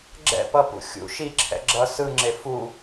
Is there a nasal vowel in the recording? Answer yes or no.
no